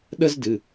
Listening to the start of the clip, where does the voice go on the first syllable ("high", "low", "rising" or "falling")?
high